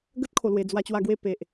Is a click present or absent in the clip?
absent